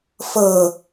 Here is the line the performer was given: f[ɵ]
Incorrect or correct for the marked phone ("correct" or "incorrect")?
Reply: incorrect